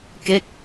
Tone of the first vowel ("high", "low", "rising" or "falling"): falling